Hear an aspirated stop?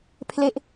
yes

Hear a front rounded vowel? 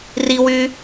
yes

